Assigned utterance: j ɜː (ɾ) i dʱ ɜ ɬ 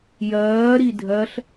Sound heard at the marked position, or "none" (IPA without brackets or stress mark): ɾ